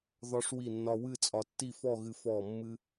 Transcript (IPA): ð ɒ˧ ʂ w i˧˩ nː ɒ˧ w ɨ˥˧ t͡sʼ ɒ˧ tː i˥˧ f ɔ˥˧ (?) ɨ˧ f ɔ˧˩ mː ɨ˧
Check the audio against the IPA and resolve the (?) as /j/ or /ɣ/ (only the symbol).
ɣ